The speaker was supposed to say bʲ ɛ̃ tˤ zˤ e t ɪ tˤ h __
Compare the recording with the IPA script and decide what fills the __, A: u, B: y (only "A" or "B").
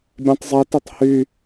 B